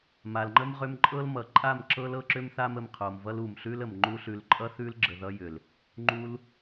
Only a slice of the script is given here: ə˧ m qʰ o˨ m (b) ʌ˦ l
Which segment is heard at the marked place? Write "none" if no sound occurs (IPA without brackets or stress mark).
v